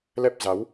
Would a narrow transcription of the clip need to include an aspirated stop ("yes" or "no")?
no